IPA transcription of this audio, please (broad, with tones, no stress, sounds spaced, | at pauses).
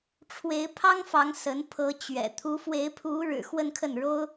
ʈ͡ʂʰ w e˧˥ ɪ̯ pʰ ɑ˥ ŋ f ɑ˧˥ ŋ s ə˧˥ n pʰ ɤ˧˥ t͡ɕ ɥ ɛ̰˨˩ t̪ʰ u˧˥ f w e˧˥ ɪ̯ pʰ u˧˥ ɻ ɻ̩˨˩ x w ə˥˧ n kʰ ə˥˩ n ɻ o˥ ʊ̯